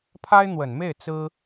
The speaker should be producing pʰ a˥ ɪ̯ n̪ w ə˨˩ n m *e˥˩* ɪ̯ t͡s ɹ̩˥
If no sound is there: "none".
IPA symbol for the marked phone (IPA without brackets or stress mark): e˥˩